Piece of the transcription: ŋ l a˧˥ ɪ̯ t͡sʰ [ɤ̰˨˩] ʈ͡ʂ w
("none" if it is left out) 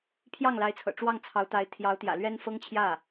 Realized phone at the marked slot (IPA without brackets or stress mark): ɤ̰˨˩